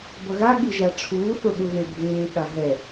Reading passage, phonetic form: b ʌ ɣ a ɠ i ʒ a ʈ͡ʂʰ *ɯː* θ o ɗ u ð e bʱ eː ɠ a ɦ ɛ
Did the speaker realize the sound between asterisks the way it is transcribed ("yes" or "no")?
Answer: no